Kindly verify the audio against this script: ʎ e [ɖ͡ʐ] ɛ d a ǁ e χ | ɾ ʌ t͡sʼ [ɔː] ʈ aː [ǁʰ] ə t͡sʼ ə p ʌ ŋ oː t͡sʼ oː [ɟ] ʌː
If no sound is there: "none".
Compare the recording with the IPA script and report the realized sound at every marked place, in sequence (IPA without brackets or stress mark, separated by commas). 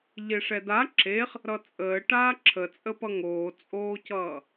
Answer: ʂ, əː, ǁʰ, c